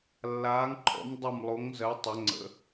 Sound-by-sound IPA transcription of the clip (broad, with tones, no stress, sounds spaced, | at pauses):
lː aː˩˧ ŋ ǃʰ ɔ̰˩˧ m dˤ ʌ˧˩ m lˠ o˩˧ ŋ z ɜ˩˧ tˤ ɛ˩˧ ŋ͡ǀ ə̰˩˧